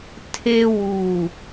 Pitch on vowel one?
high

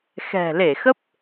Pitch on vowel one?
low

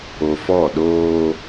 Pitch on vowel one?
low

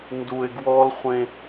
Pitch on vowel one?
low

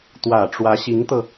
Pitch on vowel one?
low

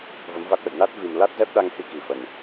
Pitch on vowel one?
rising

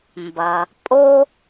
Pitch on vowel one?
low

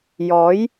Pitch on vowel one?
rising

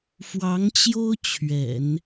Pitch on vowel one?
rising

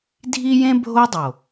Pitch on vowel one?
high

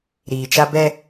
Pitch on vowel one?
low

